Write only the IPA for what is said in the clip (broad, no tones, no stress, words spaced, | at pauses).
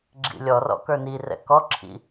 ɡ͡ǁḭlʲɔrɔ̰ kə˞nirɛ̰ kɔǁʰḭ